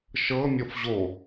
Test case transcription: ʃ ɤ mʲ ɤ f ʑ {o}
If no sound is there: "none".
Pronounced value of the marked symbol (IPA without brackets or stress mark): o